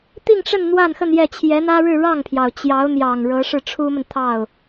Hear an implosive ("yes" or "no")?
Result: no